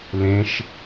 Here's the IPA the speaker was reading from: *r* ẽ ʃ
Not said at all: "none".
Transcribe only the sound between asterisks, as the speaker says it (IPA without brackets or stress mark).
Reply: l